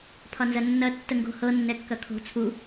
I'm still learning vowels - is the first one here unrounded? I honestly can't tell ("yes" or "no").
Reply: no